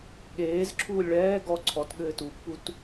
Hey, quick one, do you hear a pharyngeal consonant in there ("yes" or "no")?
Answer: no